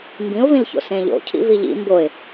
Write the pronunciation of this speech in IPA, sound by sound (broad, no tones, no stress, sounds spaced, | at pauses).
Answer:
m b ĩ ʊ̯ v ĩ l ç o̰ s ẽ ʎ o̰ cʰ ḭ v i ʎ ḭ m b o ɪ̯